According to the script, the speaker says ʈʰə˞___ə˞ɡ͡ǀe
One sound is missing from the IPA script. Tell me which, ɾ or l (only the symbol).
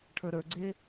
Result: ɾ